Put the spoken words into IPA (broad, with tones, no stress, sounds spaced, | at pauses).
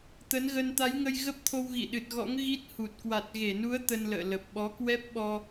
t̪ ə˨˦ n ɣ ə˧ n t̪ a˨˦ j ŋ ə˧ j ɣ ə˦˥ p̚ t̪ʰ o˧ w ɣ ḭ˧˨ ɗ ɨ˨˩ t̚ ɣ ɔ̰˧˥ ŋ ɣ i˦˥ t̚ h u˨˩ t̚ k w a˨˩ t̚ ɣ e˧˩ n u˨˦ ə̯ t̪ ə˧ n l ə̰ː˧˨ l ə˨˩ p̚ ɓ ɔ˨˦ k w ɛ˦˥ p̚ ɓ ɔ˧